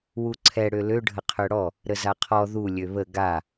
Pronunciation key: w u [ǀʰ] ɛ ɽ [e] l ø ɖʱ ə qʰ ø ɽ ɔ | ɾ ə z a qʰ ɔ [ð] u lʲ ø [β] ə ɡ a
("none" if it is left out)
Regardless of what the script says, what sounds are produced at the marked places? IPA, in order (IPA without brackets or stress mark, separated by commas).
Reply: ǀʰ, ø, ð, β